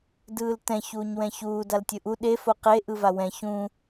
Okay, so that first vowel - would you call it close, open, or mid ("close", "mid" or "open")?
close